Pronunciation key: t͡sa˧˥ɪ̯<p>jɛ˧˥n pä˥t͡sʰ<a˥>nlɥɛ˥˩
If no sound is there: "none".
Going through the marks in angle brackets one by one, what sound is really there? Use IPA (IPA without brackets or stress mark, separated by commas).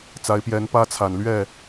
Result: p, a˨˩